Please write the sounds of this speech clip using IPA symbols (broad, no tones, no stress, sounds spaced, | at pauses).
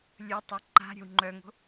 lʲ ɵ tˤ œ ǃ a̤ ɾʲ ə̤ w ŋ͡ǃ œ ŋ o̤